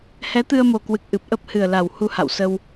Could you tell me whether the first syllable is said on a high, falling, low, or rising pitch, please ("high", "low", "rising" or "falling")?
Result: rising